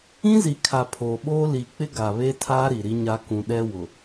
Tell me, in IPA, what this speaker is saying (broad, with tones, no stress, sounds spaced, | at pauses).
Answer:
ĩ˦ z i˨ kʰ a˨ pʰ oː˨ ɓ oː˦ l i˨ k͡p ɪ˦ ɡ a˨ β e˦ tʰ aː˦ ɾ i˨ ɾ i˦ ɲ a˦ k ũ˨ ɗ ɛ˦ w ʊ˨